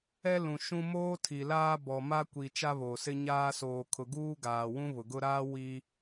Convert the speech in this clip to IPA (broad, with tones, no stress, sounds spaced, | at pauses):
ɛ˦ l ũ˨ ʃ ũ˦ m oː˦ tʰ i˨ l aː˦ b ɔ˨ m a˦ kʷ i˨ t͡ʃ a˦ β o˨ s ɪ˦ ɲ aː˦ s oː˨ kʰ ʊ˨ ɡ uː˦ ɡ aː˨ w ũ˦ β ʊ˨ ɡ ʊ˦ ɾ aː˦ w i˦